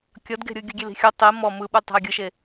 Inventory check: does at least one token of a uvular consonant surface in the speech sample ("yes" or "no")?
no